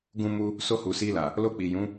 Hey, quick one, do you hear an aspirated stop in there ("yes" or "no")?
no